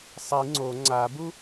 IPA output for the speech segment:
sˤ i ŋ͡ǀ o ŋ͡ǀ a b u

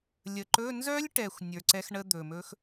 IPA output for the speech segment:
lʲ ə˨˩ ǃ ɵ˧˥˧ n z œ˦˥ lʲ ʈ ɛ˨˩ xʷ nʲ ə˞˨˩ ǀ ɛ˦˥ x ɳ ə˦˥ d̪ ɵ˨˩ m ɵ˦˥ x

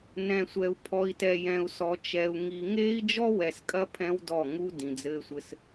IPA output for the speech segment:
n ɛ̃˨ sʷ ɛ˨ u̯ pʰ ɔ˨ i̯ t ɛ˨ j ɛ̃˨ u̯ s ɔ˨ t͡ʃ ɛ˨ u̯ ŋ i˨ ŋ eː˦ i̯ d͡ʒ ɔ˦ w ɛ˨ s kʼ ɐ˦ pʰ ɛ̃˦ w d ɔ˦˨ ŋ u˦ d ĩ˨ d͡z ɘː˦ sʷ ɘ˦ s

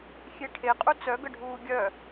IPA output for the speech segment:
xʲ e ʈʰ e qʼ u t͡s œ ɡ ə ɖʱ uː ɡʲ œ

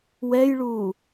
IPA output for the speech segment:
w ɛ j ɭ uː

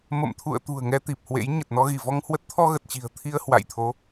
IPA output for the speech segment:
m ə̰˧˨ m t̪ʰ ṵ˧˨ ə̯ t̪ ṳ˨˩ ə̯ ŋ ɛ˧ t̪ i˨˩ p̚ h w ḛ˧˥ j ɲ ə˨˩ t̚ n ɔ˧ ɣ i˧˩ v ɔ˧ ŋ h w ə˦˥ t̚ t̪ʰ ɔ˧ ɣ ə˨˩ t̚ t͡ɕ i̤˨˩ ə̯ t̪ʰ i˧ ə̯ h w a̰˧˨ j t̪ʰ o˨˦

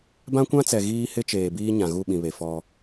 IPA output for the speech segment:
b ã˦ kʷ ã˦ t͡s ɛ˨ ɣ iː˦ h ɪ˦ t͡ʃ eː˨ b iː˦ ɲ ã˨ ɣ u˦˨ ɓ ĩ˨ β e˨ f ɔ˦

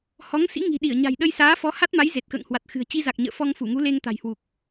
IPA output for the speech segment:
h ɔ˨˦ ŋ s ḭ˧˥ ŋ i̤˨˩ ɗ i˧˩ ə̯ ɲ a̤˨˩ j ɗ ə˧ j s aː˨˦ f ɔ˨˦ h a˦˥ t̚ m a˨˦ j z e˨˩ t̚ k ə̰ː˧˨ ŋ h w a˨˩ t̚ x ɨ̤˨˩ ə̯ t͡ɕ i˧ z a˨˩ k̚ ɲ ə̰ː˧˨ f ɔ˧ ŋ f u˧˩ ŋ u˨˦ l e˧ ŋ t̪ a̤˨˩ j h w u˨˩ k̚

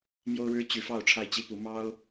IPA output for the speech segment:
m j o˥ ʊ̯ ɻ ɻ̩˥ t͡ɕ y˧˥ f ɑ˥˧ ʊ̯ ʈ͡ʂʰ a˥˩ ɪ̯ t͡ɕ i˥ p u˧˥ m ɑ˥ ʊ̯

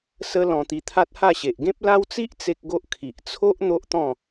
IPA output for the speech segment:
s ə˦ l ɔ̃˧ t̪ i˧ t̪ʰ a˦ t̚ h a˥˧ ɕ e˨ ʔ ɡ ẽ˦ p̚ l a˦ w t͡s i˦ ʔ t͡s e˦ k̚ ɡ o˦ ʔ kʰ i˨ ʔ t͡sʰ o˦ ʔ n̪ o˦ ʔ t̪ ɔ̃˥˧

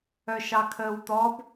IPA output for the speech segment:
œ ʃ ɑ kʰ əː w t̪ ɔ b

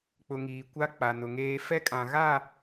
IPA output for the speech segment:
k͡p ʊ˨ ŋ iː˨ kʷ a˦ k͡p a˨ n ʊ˨ ŋ eː˦ f ɛ˦ kʼ ã˨ ɣ a˦˨

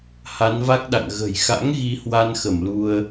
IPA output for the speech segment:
h a˨˦ n v a˦˥ k̚ ɗ a̰˧˨ ŋ ɣ ə̤˨˩ j x a̰˧˥ ŋ ɣ i˧ h w a˧ n x ə˧˩ m l u˧ ə̯

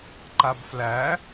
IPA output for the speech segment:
ǃ a b f l æ

